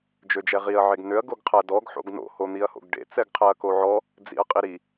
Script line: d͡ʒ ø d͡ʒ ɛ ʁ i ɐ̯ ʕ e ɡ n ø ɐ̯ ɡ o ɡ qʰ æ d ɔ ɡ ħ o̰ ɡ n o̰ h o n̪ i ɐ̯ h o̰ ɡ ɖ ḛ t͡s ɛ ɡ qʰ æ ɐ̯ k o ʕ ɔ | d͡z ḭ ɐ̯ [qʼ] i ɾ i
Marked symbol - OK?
yes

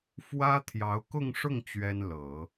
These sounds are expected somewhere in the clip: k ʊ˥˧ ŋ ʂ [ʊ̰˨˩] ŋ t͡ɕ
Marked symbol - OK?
no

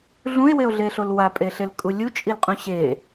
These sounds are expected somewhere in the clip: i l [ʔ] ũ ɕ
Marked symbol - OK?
no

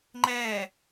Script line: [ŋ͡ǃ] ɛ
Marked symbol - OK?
yes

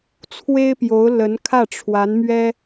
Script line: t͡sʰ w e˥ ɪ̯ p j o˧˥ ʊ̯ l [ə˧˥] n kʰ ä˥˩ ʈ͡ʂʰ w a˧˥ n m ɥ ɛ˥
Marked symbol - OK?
yes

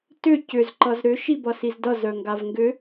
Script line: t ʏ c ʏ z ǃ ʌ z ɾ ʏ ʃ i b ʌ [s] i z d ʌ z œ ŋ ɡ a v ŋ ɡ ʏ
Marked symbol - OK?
yes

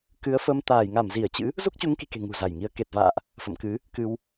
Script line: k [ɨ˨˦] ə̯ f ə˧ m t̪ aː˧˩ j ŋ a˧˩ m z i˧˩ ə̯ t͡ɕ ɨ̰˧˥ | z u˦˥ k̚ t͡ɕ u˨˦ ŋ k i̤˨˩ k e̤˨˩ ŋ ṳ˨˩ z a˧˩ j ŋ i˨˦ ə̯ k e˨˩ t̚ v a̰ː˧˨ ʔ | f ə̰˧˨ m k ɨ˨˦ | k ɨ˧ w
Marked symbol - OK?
yes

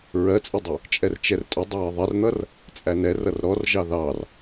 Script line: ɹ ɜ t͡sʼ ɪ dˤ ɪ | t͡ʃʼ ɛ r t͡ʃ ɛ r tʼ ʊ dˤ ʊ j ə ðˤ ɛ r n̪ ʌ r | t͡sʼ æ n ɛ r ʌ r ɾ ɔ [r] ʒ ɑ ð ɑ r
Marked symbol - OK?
yes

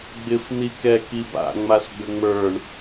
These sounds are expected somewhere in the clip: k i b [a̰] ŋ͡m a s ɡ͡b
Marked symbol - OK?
yes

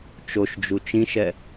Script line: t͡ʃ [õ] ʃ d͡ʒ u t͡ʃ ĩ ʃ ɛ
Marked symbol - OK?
no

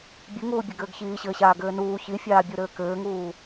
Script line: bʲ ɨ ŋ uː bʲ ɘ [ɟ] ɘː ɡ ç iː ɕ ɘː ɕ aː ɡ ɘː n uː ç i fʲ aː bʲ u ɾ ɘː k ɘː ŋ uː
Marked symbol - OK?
no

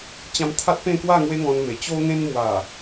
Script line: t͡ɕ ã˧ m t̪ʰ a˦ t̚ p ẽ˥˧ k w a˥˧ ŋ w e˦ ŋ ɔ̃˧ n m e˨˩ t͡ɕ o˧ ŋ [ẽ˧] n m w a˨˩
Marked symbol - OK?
yes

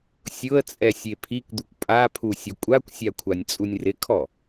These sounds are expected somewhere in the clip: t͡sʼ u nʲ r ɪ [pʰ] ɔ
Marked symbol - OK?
no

